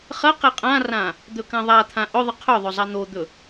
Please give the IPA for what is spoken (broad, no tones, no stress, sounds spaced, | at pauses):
χ ɐ q e qʼ ã r ã | d̪ ɵ k ã ðˤ a t̪ʰ ã ʔ ɵ ðˤ ɨ qʰ ɵ ðˤ ɵ zˤ a n̪ o d̪ ɵ